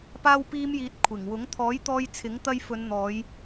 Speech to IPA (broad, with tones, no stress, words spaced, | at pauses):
paː˥wpiː˥mjiː˧t̚ kʷʰɪ˨˩ŋ wʊ˨˥ŋ t̪ʰɔː˨˥jt̪ɔː˧j t͡sʰɪ˨˥ŋt̪ɐ˧jfɵ˨˧n n̪ɔː˨˧j